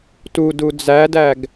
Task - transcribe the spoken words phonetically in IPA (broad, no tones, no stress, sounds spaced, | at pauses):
t u d u d͡z æ d æ ɡ